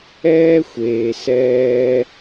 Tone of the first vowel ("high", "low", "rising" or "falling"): high